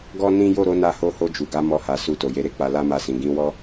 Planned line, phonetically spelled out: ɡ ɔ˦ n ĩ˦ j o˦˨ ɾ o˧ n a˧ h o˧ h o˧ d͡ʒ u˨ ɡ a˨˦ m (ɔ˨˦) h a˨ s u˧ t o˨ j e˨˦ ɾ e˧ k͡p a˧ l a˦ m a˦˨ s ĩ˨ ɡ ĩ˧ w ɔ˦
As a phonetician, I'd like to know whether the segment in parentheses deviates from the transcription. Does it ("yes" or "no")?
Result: yes